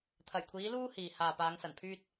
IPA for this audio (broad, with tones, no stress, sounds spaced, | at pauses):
t̪ʰ ɐ˨˩ j kʷʰ iː˨˧ l uː˧ h iː˨ h aː˨ p aː˨˧ ŋ s ɐ˨˩ n pʰ yː˧ t̚